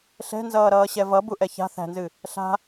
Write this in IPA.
ɬɛ̤nzʌːɾʌːɕɛ vʌbuʔɛ ça̤ θæ̤nzɨ | ɬa̤

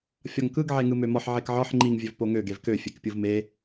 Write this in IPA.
fʲɒŋkɯɡ ʕeŋɯmømɒħ ʕekʕɒħ ŋ͡ǃiŋ vʲøvpoŋø ɡevkø fʲekpʲɯvme

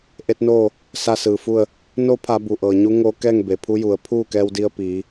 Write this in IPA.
ʔe˧˥t̚noː˥˨ | sa˥˨sɯː˩fu˥˨ə̯ | no˧˥pʰa˩˧ bu˩ʔɤː˩ɲu˧˥ ŋo˧ kɛː˥˨ŋbe˩pʰu˧˥ju˩˧ə̯ pʰuː˥˨kɛː˧wdi˧ə̯ piː˩˧

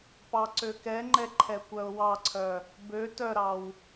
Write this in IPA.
pɑǀøkɛŋ͡ǃɛ ǃʰɛkʷœʊ̯wɑǀʰœ | bø tœɾɑw

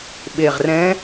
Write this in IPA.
ɓe˨˩ʁrɛ̃˧˥

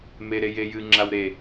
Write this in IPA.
meɾejejɨ ŋ͡ǁawɾe

